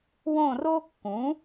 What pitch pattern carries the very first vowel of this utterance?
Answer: falling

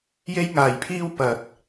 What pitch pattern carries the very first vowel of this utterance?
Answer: high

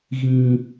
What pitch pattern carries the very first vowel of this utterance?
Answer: high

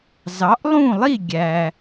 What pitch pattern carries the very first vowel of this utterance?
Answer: rising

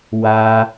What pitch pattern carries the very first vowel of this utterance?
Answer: high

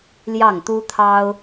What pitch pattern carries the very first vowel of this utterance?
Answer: falling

